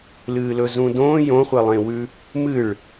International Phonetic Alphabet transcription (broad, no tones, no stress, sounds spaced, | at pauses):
l ɨː l ɵ z ũ d õː j õ χʷ e lˠ ẽ w ʉ | m ɨ ɭ